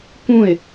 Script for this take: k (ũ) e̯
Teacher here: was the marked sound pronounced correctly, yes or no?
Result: yes